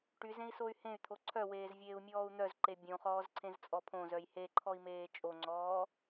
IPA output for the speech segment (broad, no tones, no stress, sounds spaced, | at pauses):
ʈ y z ẽ i̯ s o y̯ h ẽ y̯ t̪ʰ o ǀʰ œ w eː z vʲ eː u̯ mʲ ɔː u̯ n̪ œ z ǃ e bʲ õ χ ɔː z ǀʰ ẽ z t͡sʼ ɔ pʰ õ z œ j h e ǃʰ ɔ i̯ m eː t͡ʃʼ o ŋ͡ǀ ɔː